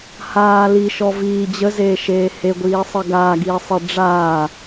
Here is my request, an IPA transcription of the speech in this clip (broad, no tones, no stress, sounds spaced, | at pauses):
h aː l i ʃ ɔ v iː d͡ʑ ə z eː ʃ eː h e ɡʷ iː sˤ ə ɡ aː ɡ iː sˤ e ɖ͡ʐ aː